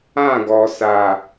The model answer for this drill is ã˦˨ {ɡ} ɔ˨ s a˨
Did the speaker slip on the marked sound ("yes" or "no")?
no